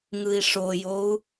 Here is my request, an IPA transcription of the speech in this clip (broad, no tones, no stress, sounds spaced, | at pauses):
ŋ ɯ i̯ ʂ o j o u̯